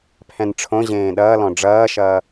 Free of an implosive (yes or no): no